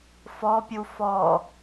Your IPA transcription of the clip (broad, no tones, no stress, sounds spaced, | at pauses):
f ɔ pʲ u f ɔ